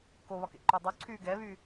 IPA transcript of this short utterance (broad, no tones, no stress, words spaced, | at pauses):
koβɒ kḛǃudˤu ǀʰyːɡɛβy